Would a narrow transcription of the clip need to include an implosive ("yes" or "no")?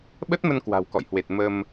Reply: yes